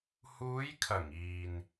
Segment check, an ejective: absent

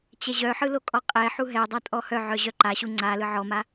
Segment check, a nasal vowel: absent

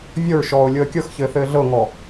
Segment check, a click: absent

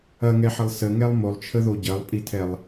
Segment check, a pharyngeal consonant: present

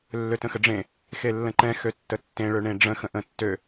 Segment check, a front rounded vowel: present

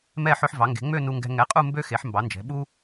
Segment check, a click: absent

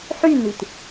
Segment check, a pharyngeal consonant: present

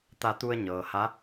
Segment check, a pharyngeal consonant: absent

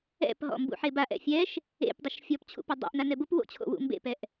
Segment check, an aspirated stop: present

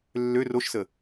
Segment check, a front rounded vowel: present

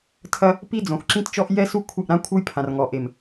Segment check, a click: present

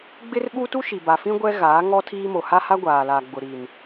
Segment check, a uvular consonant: absent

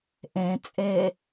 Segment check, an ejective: present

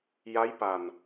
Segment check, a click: absent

